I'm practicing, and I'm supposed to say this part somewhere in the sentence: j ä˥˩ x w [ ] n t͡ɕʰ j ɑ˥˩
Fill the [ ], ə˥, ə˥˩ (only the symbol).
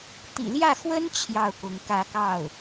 ə˥